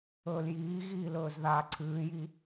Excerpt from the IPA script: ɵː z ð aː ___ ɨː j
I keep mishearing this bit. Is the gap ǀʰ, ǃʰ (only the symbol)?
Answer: ǀʰ